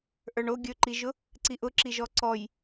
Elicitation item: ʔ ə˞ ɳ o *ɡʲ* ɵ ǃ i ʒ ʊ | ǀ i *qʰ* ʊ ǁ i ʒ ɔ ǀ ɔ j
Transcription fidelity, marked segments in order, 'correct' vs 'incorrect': correct, incorrect: ʔ

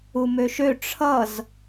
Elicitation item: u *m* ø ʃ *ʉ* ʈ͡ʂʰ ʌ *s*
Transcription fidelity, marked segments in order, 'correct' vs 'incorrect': correct, incorrect: ø, incorrect: z

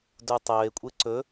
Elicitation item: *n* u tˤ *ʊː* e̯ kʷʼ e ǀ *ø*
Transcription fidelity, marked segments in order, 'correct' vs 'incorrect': incorrect: d, incorrect: ɵː, incorrect: ɵ

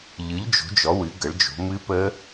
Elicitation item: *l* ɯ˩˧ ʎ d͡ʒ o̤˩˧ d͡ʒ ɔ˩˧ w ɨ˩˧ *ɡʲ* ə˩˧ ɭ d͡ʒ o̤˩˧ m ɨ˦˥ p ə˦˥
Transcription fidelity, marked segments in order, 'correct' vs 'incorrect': incorrect: ʎ, incorrect: ɡ

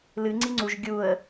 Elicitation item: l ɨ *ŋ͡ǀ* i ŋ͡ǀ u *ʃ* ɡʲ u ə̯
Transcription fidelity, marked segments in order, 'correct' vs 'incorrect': correct, incorrect: ʒ

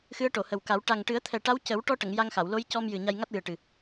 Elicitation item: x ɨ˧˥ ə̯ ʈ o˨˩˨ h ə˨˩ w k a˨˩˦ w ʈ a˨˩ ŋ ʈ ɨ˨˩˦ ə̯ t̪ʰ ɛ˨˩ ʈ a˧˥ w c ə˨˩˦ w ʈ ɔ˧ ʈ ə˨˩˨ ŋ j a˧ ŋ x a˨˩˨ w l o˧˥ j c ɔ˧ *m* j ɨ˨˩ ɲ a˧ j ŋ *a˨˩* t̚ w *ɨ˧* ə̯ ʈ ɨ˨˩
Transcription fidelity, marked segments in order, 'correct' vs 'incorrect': correct, incorrect: a˦˥, incorrect: ɨ˨˩

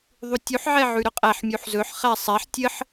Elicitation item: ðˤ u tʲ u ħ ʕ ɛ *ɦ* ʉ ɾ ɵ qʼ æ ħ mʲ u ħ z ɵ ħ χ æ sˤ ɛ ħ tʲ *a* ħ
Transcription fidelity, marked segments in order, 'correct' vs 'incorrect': incorrect: ʕ, incorrect: ə

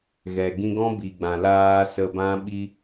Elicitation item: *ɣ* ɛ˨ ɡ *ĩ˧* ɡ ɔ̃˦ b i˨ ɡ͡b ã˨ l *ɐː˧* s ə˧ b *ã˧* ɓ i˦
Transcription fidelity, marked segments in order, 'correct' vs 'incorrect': correct, correct, incorrect: aː˧, incorrect: ã˦

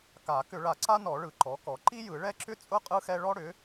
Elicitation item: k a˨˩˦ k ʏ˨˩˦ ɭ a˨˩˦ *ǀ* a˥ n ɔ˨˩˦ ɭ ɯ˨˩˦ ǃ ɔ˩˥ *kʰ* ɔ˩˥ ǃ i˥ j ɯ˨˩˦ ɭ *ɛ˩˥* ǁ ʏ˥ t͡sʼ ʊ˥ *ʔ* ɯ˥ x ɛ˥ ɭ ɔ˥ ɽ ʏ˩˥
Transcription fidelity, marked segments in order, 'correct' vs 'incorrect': correct, incorrect: k, incorrect: ɛ˥, incorrect: qʼ

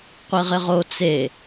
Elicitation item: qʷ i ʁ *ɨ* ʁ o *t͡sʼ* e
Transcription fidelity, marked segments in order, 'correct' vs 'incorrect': incorrect: ɪ, incorrect: t͡s

